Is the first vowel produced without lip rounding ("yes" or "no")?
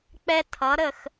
yes